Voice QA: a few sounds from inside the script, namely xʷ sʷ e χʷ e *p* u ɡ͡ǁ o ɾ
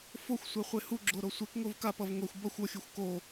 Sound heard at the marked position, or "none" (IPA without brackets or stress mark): h